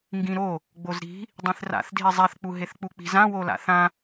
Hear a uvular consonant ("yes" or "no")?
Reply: no